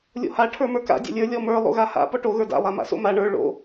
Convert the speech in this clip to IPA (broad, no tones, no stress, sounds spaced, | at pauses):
lʲ o̰ h a ʈʰ ə˞ m ə˞ k a̰ dʲ a̰ lʲ ə˞ lʲ ɔ m ə˞ lˠ o̰ ɣ a h a̰ p ɔ ʈ o ɣ ə˞ d a̰ lˠ a m a̰ s o̰ m a ɳ ə˞ ɭ o̰